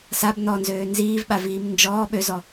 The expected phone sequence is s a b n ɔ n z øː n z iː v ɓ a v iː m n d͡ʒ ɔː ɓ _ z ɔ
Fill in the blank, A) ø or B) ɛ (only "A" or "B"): A